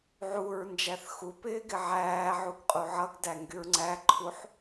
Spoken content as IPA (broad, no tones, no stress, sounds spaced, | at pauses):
ʕ u ɹ n d͡ʒ æ θ x u p ɪː ɡ ɪ ʕ æː ʕ u ɡ qʼ u ʕ ʌ ɡ d æ ŋ ɡ y ɹ ŋ͡ǀ æ ǃʰ u ħ